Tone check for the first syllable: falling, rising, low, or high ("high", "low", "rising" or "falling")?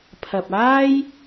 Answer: low